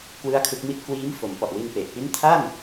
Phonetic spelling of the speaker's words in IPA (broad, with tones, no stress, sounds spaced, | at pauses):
k w ɯ˦˥ a̯ kʰ ɯ˦˥ k̚ m i˥˩ t̚ k w iː˦˥ m f o˩˦ m p ɔ˨˩ ʔ w i˧ n p e˨˩ ʔ p i˦˥ n tʰ a˥˩ n